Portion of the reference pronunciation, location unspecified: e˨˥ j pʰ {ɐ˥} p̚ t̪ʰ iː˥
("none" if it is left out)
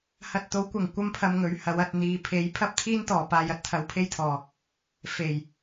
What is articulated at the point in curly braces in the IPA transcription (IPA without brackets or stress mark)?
ɐ˥